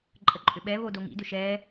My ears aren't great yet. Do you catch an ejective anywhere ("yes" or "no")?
yes